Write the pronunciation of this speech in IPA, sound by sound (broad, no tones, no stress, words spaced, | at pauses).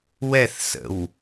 wɛθsə̰w